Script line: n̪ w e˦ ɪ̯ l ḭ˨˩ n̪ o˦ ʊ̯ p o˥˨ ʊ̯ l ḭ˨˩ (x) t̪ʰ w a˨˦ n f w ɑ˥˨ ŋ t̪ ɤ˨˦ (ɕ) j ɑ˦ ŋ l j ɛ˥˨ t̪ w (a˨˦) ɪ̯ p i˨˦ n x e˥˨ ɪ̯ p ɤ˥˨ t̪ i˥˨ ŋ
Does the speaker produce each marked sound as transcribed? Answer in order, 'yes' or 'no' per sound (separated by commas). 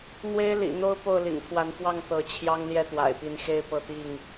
no, no, no